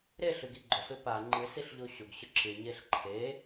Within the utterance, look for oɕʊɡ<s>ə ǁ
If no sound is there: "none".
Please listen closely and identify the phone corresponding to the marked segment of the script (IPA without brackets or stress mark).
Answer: ɕ